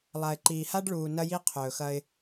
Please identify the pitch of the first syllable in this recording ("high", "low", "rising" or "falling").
low